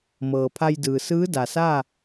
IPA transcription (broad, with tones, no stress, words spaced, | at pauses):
mɤː˩ pʰa˧jdɯː˩ sɯː˧˥da˩saː˥˨